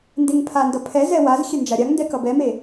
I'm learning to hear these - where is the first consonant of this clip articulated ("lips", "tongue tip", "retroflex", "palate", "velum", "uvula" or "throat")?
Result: tongue tip